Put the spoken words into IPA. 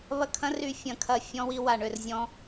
β ɐ˦˨ kʰ ɐ̃˦˥ r y˦˨ fʲ ɐ̃˦˨ kʰ ɐ˦˨ fʲ ɔ̃˦˥ w i˦˥ w a˦˨ ɳ ø˦˨ r zʲ ɔ̃˦˥

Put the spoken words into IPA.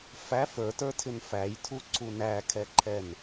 f æ f ə˞ t ə˞ tʰ ɪ n f æ j tʰ u ǀ u n æ kʰ ɛ ǃʰ ɛ n

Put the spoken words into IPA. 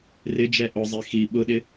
r ɪ d͡ʒ ɛ ʔ ʊ zˤ i x i ɓ ʊ ɗ ɪ

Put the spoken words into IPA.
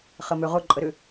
χ ə m ø ʁ ʊ ǃʼ ə ɾ ʏ

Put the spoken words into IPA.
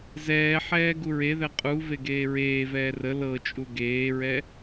z ɛː ħ ɛː ɡ u ɹ e ð ɛ qʼ u v e ɡ eː ɹ eː v ɛː r ə l ɤ t͡ʃʼ u ɡ eː ɹ ɛ

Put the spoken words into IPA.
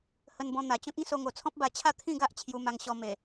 h ə˧ n b ɔ̃˧ n̪ a˨˩ t͡ɕ ɔ̃˦ k̚ ĩ˦ s o˧ ŋ o˨˩ t͡sʰ ɔ̃˦ p̚ b a˧ t͡ɕʰ a˥˧ t̪ʰ ĩ˥˧ ɡ a˦ ʔ t͡ɕʰ j u˧ m a˧ ŋ ɕ ɔ˧ m e˨˩

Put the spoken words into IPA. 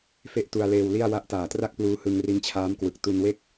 f e˥˩ ʔ t u˧ a̯ l eː˧ w l i˥˩ a̯ w a˦˥ ʔ t aː˨˩ t r a˥˩ k̚ p l uː˦˥ h ɯ˧ ŋ r i˦˥ n t͡ɕʰ aː˦˥ m k w ɯ˨˩ k̚ t u˧ n w e˥˩ k̚

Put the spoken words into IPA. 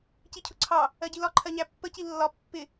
c i cʰ ʊ ǀʰ ɑ | ɜ ɟ i l ɒ ǃʰ ɜ ɲ æ pː ə c i lː ɒ pː ɪ

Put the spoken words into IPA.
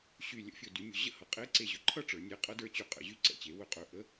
ɕ y˧˩ lʲ ə̰˧˥˧ fʲ ɵ˧˩˧ d y˩˥ mʲ ɵ˧˩ ʑ ə̰˥ h ʌ˩˥ qʼ e˧˥˧ ǀ e˧˩ ʑ ɵ˩˥ ǃʰ ʌ˥ ʈ͡ʂ ə˞˩˥ nʲ e˧˥ qʼ ʌ˧˥ d ə˞˧˥ t͡ɕ y˧˩˧ qʼ ə̰˧˩˧ ʑ y˧˥ ǀ ɛ̰˧˩ t͡ɕ e˩˥ w ɵ˧˩˧ qʼ ɵ˧˩ ʔ ə˧˥˧

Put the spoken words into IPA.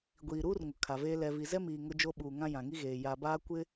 ɡʷ iː˨ ɾ uː˦ r ŋ ʊ˨ kʰ a˨ v eː˦ l ɛ˨ v i˨ z ɛ˦ m iː˨ ŋ ʊ˦ d͡ʒ o˦ ɓ uː˨ ŋ ã˦ j ã˨ ŋ i˦ ɣ eː˨ j a˨ b aː˦ kʷ ɪ˦

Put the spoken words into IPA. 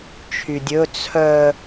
t͡ʃʰ y dʲ ɵ t͡sʰ œ

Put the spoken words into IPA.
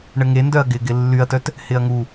ɳ ə ŋ e n d œ ɐ̯ ɡ ɪ ɡ ɪ lː y ɐ̯ t œ t | h ɪ ɐ̯ ŋ u

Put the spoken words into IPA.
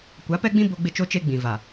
kʷ a˨˦ p ɛ˦ ɡ͡b ĩ˦ b o˦ ɡ͡b ɪ˦ t͡ʃ o˦ t͡ʃ e˦ ɡ͡b ĩ˨ v a˨

